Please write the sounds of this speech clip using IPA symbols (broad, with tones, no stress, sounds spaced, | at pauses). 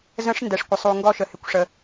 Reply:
z ə̃˧˥ ʂ n d ɛ˩ ʂ kʷ ə˩ sˤ u˩ ŋ ɡ ɔ˧ ʃ ə˩ h ɪ˩ kʷ ʂ ə˩